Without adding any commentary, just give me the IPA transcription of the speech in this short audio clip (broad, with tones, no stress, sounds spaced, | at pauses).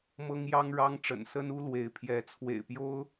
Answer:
m ɤ˥ ŋ j ɑ˥ ŋ ɻ ɑ˥ ŋ ʈ͡ʂ ə̰˨˩ n s ə˥ n u˥ l w e˧˥ ɪ̯ pʰ j ɛ˧˥ t͡sʰ w ḛ˨˩ ɪ̯ p j o˥ ʊ̯